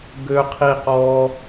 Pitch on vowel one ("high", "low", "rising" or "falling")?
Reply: high